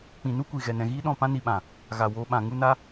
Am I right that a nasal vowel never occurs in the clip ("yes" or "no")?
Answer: no